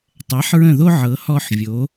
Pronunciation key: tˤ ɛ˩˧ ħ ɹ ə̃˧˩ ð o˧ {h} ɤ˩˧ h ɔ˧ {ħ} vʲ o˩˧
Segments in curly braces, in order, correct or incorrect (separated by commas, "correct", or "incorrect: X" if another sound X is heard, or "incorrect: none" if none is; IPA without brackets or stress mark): incorrect: ʕ, correct